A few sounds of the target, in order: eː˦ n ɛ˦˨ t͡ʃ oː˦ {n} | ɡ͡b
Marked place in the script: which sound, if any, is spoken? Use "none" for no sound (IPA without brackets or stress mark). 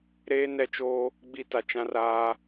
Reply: none